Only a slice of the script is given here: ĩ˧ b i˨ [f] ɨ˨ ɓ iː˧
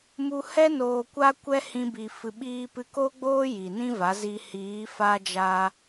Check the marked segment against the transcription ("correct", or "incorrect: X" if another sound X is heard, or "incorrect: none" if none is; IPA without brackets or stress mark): correct